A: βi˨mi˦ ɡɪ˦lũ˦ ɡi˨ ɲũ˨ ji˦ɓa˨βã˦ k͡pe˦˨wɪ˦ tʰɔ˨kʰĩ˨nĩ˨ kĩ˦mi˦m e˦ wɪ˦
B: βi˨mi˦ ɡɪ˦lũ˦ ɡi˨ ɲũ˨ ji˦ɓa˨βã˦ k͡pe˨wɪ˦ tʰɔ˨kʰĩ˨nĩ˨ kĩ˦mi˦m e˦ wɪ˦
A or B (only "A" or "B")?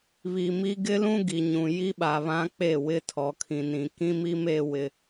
A